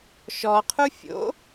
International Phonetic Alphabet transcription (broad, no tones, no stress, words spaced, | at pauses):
ʃɔqʰu fʲo̰